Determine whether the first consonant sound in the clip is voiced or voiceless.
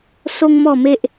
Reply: voiceless